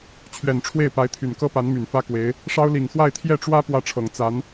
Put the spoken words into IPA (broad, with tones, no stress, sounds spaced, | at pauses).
t͡ɕʰ ɥ ɛ˨˩ n ʈ͡ʂʰ w e˥˩ ɪ̯ p a˧˥ ɪ̯ t̪ʰ y˨˩ n k ɤ˥ p a˧˥ n m y˨˩ n f ä˥ k w e˧˥ ɪ̯ | ʂ ɑ˥ ʊ̯ l i˨˩ ŋ x w a˥˧ ɪ̯ t̪ʰ j ɛ˥˩ ʈ͡ʂ w ä˥ p w ä˥˩ ʈ͡ʂʰ ɤ˨˩ ŋ t͡s a˧˥ n